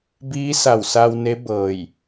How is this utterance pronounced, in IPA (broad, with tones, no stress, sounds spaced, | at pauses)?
b iː˧˥ s a˧˩ w s a˧ w n e˧˥ b ɤː˧˩ j